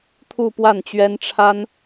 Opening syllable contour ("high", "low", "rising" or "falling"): falling